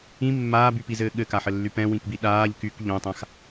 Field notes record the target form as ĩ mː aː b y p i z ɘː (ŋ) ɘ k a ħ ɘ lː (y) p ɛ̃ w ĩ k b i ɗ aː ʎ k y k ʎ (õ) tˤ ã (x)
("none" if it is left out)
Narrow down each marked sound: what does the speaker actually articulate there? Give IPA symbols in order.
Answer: ɠ, y, õ, x

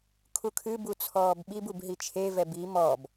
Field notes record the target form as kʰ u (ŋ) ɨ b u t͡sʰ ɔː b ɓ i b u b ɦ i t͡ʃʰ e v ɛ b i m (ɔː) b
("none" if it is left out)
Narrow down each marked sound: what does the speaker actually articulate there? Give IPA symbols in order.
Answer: kʰ, ɔː

